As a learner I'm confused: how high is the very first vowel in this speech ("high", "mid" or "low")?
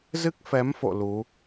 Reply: high